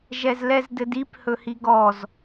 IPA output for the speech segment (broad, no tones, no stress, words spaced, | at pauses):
ʒɛzlɛzdɘdip hɵhiɡɔz